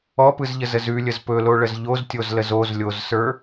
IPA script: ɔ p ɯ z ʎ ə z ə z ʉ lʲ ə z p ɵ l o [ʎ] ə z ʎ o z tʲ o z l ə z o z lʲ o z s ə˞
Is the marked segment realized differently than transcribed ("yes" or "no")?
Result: yes